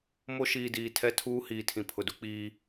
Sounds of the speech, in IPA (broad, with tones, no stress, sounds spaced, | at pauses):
m o˦ ʃ iː˨ d iː˨ tʰ ɛ˦ tʰ uː˦ h iː˨ tʰ ĩ˨ pʰ ʊ˨ d u˦ k͡p iː˦